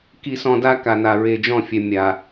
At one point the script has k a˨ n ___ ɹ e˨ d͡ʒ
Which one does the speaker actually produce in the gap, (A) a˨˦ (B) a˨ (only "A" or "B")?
B